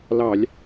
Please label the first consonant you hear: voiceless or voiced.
voiced